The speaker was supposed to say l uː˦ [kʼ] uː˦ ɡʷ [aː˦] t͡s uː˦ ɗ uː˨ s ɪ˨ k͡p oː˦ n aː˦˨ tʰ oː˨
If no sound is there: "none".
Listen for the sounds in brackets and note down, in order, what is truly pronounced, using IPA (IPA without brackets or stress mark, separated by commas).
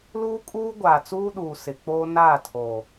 kʼ, aː˨